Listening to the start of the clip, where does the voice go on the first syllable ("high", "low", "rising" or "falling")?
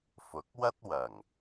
rising